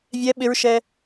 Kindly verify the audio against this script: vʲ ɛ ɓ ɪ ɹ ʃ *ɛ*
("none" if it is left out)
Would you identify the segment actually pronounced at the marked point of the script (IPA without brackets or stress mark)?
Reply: ɛ